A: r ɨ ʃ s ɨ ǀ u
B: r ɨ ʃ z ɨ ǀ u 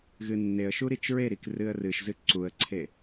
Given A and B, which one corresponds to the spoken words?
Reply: B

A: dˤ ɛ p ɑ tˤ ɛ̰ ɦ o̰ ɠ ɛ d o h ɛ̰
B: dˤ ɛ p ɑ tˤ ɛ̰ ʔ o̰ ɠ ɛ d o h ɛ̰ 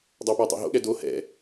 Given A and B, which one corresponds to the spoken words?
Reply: A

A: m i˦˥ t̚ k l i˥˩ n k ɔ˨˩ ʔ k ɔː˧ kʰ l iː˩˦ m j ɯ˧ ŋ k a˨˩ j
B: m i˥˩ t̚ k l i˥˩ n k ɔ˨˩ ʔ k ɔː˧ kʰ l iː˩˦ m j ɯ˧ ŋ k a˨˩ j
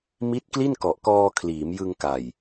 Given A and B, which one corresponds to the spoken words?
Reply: A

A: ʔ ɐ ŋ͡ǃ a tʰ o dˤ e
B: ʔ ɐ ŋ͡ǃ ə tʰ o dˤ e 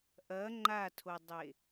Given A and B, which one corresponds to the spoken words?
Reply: A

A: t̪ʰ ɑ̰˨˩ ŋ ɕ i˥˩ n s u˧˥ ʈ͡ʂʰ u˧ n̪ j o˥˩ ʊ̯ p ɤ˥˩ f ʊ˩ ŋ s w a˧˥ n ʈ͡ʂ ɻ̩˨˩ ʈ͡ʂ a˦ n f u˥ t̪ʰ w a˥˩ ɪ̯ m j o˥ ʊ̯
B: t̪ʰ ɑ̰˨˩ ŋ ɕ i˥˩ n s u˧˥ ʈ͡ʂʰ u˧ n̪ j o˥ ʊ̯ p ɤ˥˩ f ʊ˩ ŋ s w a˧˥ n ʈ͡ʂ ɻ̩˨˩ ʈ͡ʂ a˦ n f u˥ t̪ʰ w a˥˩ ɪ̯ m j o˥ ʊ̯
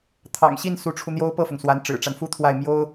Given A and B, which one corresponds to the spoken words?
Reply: B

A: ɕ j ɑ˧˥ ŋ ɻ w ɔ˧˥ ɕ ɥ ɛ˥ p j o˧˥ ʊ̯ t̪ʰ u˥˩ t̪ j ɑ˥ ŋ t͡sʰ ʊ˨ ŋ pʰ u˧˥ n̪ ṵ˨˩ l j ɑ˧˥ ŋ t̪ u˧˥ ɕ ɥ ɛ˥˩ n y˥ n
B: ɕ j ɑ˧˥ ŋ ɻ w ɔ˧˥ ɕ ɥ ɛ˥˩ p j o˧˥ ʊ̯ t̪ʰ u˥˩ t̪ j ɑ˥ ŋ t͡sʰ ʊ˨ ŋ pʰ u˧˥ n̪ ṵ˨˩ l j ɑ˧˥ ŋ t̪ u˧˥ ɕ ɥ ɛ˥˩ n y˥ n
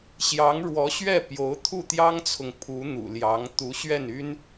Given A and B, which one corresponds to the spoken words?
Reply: B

